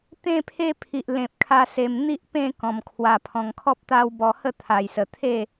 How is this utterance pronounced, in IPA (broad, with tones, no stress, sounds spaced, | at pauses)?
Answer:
t̪ ẽ˥˧ pʰ e˦ pʰ i˨ ʔ l ẽ˨ p̚ kʰ a˧ s e˨˩ m n̪ i˦ ʔ p ẽ˥˧ k ɔ̃˨˩ m kʰ w a˨˩ pʰ ɔ̃˨˩ ŋ kʰ ɔ˦ p̚ t̪ a˦ w b ɔ˧ h ə˥˧ t̪ʰ a˨˩ j s ə˨˩ t̪ʰ e˥˧